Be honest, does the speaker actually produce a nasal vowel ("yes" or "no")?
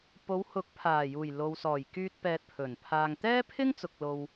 no